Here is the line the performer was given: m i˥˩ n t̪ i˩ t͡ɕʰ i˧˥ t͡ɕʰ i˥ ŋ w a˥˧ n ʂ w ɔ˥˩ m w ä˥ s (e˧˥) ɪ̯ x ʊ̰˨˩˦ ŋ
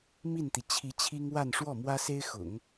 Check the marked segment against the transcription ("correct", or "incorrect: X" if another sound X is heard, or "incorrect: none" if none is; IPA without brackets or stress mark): incorrect: e˥